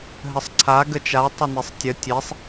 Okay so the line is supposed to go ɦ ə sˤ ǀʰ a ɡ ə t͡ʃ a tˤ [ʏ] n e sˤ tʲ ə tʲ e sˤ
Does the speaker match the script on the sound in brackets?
yes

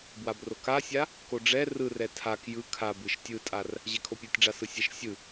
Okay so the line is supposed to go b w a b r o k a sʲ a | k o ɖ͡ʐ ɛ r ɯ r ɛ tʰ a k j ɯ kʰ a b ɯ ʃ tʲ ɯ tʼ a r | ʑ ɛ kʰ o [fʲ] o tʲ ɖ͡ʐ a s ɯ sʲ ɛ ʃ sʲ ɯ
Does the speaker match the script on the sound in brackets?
no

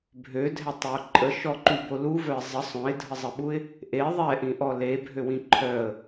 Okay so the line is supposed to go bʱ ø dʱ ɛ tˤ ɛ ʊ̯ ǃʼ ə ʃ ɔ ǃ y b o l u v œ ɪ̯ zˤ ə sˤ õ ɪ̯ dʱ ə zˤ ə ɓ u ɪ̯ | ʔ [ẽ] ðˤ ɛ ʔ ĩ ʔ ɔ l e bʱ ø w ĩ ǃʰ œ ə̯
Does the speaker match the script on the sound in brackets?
no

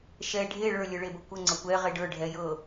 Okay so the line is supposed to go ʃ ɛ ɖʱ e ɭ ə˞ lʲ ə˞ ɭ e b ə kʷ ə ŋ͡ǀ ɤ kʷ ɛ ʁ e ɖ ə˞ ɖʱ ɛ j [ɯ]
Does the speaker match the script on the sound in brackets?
no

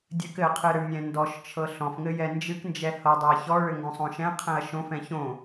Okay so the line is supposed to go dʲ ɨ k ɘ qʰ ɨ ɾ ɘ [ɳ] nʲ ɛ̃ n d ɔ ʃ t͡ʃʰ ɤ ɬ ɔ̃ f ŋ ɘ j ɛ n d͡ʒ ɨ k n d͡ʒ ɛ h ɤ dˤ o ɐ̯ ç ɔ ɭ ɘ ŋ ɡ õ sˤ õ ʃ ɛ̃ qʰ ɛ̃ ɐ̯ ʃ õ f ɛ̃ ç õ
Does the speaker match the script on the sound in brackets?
yes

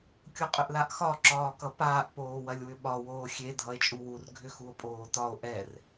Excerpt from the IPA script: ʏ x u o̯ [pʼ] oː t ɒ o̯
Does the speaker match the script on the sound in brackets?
yes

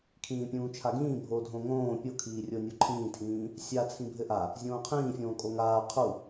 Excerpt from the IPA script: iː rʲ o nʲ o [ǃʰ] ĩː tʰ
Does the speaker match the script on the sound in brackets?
yes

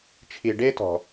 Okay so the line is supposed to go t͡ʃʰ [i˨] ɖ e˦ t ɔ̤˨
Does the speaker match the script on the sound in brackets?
yes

